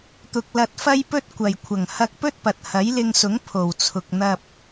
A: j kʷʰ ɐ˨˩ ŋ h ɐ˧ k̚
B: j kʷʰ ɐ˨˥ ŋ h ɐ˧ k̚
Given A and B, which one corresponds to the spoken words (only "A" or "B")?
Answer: A